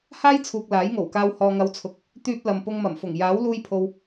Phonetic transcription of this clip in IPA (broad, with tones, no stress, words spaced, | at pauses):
haː˥jt͡sʰuː˨k̚ laː˨˥jŋo˨˩wkaː˧w hɔː˨ŋɐ˨˧wt͡sʰʊ˨k̚ | t̪yː˧p̚ lɐ˨mpʊ˧ŋmɐ˨˩mfʊ˨˩ŋ jaː˨˥wluː˧jpʰo˨w